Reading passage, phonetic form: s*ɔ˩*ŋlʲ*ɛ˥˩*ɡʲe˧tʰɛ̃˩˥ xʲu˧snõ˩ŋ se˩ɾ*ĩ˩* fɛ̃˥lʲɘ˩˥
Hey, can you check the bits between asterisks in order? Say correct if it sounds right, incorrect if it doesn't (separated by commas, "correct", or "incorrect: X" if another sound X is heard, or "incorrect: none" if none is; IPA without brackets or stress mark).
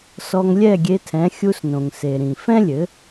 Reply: incorrect: ɔ˧, correct, correct